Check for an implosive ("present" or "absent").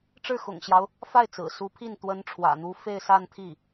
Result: absent